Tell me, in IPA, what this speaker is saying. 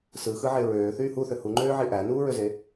s ɯ x ɯ ʕ e ɹ øː θ yː h u θ ø h u ŋ͡ǃ øː ʕ i ʔ æ n uː ɹ ø z e

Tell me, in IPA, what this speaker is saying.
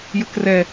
j ə k r ɛ

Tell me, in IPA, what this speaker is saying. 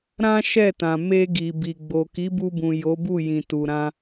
ɾ ã˦ ʃ ɛ˦˨ t ã˨ m e˧ ɡ i˨ b i˨ ɡ͡b o˨ k i˨˦ b u˧ b ũ˨ j o˨˦ b u˦˨ j ĩ˨ t u˨ ɾ ã˧

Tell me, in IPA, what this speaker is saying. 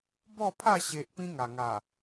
b ɔ˥˧ pʰ a˥˧ ɕ e˦ ʔ p ĩ˧ ŋ a˨˩ ŋ a˨˩

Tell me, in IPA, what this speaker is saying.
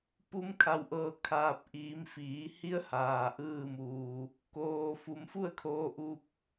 p u˧ m kʰ a˩ w ʔ ɤː˧˩ kʰ aː˧˩ p̚ ʔ iː˩˧ m f iː˩˧ h i˧˥ ə̯ h aː˩ ʔ ɯː˧˩ m uː˩ | k oː˩ f u˩˧ m f u˥˨ ə̯ kʰ oː˧ ʔ u˧ p̚

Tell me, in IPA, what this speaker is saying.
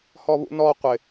h ɔ β ṵ n ɔ qʷ ɪ

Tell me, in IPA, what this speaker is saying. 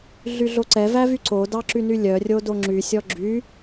ɮ y ɮ o ǀ ɛ v æ v y ǀ o d ɑ ǁ y n y lʲ œ rʲ o d o ŋ͡ǁ y sʲ ɔ ɡ͡ǁ y

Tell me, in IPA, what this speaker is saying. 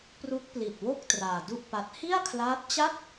p r u˦˥ k̚ p l i˨˩ t̚ w o˥˩ k̚ t r aː˧ d u˥˩ ʔ p a˦˥ t̚ h i˥˩ a̯ kʰ l aː˦˥ t̚ t͡ɕ a˥˩ t̚

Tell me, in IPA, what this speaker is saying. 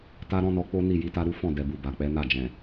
t a˦ ɾ ɔ̃˦ n ɔ˧ k͡p o˦ n i˦˨ j i˧ t a˦ ɾ u˦ f ɔ̃˦˨ d ɛ˨ b u˨ b a˨ k͡p ɛ˨˦ n a˦˨ d͡ʒ ɛ̃˨

